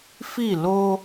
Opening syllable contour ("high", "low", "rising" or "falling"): falling